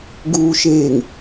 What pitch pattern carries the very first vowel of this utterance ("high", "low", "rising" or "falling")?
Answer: low